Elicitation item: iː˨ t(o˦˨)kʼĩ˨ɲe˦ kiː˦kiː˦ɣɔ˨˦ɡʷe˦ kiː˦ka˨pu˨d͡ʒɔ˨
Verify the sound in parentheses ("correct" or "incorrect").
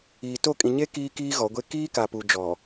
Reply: correct